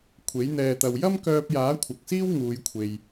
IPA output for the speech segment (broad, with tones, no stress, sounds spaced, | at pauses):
kʷʰ e˨˥ j n̪ ɛː˧ t̪ ɐ˧ w j ɐ˥ m k œː˧ p̚ j aː˨˥ kʷʰ ɐ˨ k̚ s iː˥ w ŋ uː˧ j kʷʰ e˨ j